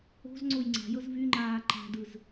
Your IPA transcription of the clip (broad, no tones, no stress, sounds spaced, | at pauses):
o̤ z ŋ͡ǀ o j ŋ͡ǀ a̤ j ɤ z v y ŋ͡ǃ aː ǃ a̤ d ɯ z